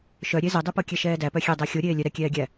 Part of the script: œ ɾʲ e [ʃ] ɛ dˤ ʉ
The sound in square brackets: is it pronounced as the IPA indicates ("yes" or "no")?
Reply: no